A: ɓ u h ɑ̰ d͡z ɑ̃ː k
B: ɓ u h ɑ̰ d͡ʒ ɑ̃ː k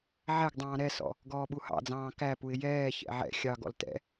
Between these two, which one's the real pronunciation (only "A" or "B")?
A